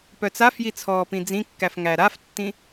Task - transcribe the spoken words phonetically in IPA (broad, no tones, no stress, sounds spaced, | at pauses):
p œ t͡s a f j i t͡sʰ ɔː p ĩ d͡z ĩ kː æ f ŋ æ ɾ a f tː ĩ